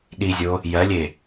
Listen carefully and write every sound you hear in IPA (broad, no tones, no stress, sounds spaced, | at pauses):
ɗ i zʲ o | j ɜ lʲ e